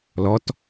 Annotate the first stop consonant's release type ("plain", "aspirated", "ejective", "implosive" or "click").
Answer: plain